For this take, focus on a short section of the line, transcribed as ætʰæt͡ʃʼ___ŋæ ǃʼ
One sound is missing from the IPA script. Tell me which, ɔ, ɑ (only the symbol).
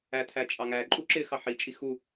ɑ